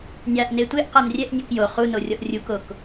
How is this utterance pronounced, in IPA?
nʲ a ʔ n e tʷ e ʔ q a n rʲ ɛ ʔ nʲ e k j o χ u n o rʲ ɔ ʔ rʲ u k o k

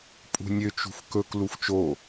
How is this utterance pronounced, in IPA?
pʼ ṳ nʲ ø t͡ʃ ṳ f k ɵ k l u f t͡ʃ o

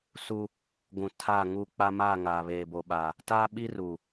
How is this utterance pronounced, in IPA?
s u˦ | ɡʷ ũ˨ tʰ a˦˨ ŋ u˦˨ k͡p a˦ m aː˦˨ ŋ aː˨ β eː˨ b o˨ ɓ a˨ | t aː˦ ɓ i˦ r u˨

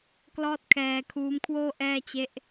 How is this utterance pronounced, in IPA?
k l ɔː˥˩ t̚ kʰ ɛː˧ kʰ uː˦˥ m kʰ w oː˥˩ ʔ ɛː˥˩ t͡ɕ e˦˥ ʔ

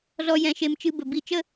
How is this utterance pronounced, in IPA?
z ɔ˦ j ɛ̃˧ ʃ e˧ m t͡ʃ ɨ˦ b ə˨ b i˦˨ t͡ʃ ə˦

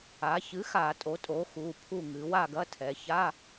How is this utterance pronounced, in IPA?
a˩˧ ç ɨ˩˥ x a˧˩˧ tʼ o˩˥ tʼ o˩˥ x u˩˧˩ pʰ u˥˨ ŋ ɨ˩˧ w a˥˨ ɡ ɐ˧˥˧ tʰ ɛ˩˧ ç a˧˥˧

